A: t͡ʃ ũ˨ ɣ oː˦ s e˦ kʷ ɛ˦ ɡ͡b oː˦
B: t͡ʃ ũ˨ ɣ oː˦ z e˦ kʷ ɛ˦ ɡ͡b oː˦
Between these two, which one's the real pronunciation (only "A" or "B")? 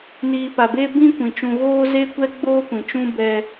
B